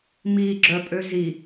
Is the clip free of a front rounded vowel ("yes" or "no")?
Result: no